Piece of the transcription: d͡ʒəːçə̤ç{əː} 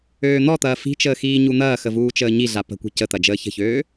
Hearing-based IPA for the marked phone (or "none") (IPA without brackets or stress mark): øː